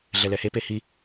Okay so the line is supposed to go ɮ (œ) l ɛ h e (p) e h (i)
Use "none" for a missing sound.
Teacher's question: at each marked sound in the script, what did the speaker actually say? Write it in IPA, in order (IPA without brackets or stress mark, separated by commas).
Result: ɛ, p, i